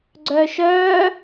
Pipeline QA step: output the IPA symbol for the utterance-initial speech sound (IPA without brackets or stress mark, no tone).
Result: ɡ͡ǀ